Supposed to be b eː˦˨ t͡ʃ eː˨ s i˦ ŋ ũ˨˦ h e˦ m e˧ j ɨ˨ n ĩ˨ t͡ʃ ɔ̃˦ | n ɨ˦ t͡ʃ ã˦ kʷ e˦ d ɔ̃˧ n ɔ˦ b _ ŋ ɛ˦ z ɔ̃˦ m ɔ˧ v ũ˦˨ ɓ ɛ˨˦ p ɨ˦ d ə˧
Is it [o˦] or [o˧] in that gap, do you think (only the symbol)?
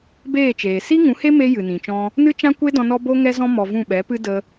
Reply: o˦